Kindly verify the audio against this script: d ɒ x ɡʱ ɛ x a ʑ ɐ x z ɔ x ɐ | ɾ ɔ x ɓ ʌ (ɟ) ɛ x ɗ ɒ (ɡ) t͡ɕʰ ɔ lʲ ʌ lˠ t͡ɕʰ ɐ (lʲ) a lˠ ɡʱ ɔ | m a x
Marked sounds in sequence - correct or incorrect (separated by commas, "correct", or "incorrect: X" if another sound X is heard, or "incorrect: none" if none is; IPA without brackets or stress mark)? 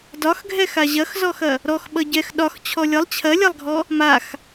correct, incorrect: x, correct